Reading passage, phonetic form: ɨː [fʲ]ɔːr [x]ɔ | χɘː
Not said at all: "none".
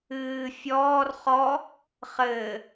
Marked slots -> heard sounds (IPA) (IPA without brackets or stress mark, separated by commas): fʲ, χ